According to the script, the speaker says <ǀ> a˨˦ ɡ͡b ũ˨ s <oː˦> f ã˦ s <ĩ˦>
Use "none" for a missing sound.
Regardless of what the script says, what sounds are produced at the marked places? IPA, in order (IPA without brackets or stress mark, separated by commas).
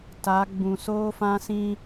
t, oː˦, ĩ˦